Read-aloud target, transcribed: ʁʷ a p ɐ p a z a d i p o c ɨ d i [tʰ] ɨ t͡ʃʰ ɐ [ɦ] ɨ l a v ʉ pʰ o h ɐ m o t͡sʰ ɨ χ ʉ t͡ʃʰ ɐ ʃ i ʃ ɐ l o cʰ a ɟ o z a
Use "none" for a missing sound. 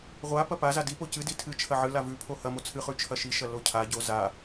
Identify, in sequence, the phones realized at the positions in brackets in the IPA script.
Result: tʰ, ʕ

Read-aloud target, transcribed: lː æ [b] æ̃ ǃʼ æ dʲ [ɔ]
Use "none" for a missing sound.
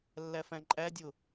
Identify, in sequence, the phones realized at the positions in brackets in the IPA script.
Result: f, ʊ

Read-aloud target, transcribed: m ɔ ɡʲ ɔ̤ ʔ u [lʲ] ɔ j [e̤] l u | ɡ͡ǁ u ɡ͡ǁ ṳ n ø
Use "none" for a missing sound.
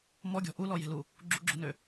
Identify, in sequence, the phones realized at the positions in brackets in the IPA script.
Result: l, e̤

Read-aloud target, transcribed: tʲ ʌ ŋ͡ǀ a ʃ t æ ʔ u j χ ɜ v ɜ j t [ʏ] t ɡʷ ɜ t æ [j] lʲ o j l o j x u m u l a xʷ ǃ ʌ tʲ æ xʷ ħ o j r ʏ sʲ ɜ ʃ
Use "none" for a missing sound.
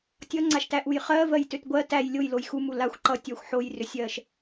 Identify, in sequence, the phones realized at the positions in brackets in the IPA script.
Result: ʏ, j

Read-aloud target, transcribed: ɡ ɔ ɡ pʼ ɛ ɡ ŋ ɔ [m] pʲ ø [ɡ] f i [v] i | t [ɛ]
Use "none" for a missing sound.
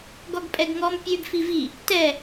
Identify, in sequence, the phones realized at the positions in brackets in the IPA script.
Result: m, ɡ, v, ɛ

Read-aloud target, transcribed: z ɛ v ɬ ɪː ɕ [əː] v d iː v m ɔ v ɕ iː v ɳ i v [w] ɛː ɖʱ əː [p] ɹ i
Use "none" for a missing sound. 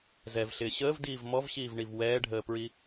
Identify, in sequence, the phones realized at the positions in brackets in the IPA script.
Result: əː, w, p

